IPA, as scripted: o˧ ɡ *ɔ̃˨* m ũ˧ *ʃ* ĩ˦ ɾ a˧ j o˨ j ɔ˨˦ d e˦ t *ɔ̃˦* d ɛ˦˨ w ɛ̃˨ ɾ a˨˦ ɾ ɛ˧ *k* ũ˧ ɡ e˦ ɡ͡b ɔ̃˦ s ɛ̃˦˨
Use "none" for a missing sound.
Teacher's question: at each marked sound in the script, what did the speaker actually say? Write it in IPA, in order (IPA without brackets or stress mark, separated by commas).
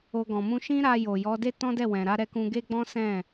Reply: ɔ̃˨, ʃ, ɔ̃˦, k